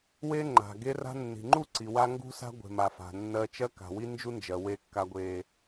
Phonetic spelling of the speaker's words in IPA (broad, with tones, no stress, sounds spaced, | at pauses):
w e˦ ŋ͡ǃ a̤˨ ɡ e˦ r a̤˦ nː i̤˨ ŋ͡ǃ u˦˨ ǀ i˨ w a˦ ŋ ɡ ṳ˦ s a̤˦ ɡʷ e̤˨ m a˨ f a̤˨ nː ɜ˦ t͡ʃ ɜ˦ k a̤˨ w i˦ n d͡ʒ u˦ n d͡ʒ ɜ˨ w e˦ kː a˦ ɡʷ e˦